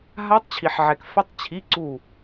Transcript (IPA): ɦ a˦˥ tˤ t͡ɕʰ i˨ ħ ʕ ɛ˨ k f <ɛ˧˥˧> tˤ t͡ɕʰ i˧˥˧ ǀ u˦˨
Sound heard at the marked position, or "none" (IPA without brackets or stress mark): ɛ˦˥